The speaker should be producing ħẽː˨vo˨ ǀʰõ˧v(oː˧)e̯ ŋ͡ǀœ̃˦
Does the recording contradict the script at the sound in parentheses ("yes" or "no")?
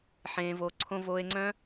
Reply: no